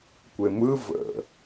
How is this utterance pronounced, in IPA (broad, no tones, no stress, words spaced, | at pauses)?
kʷemɯ və̰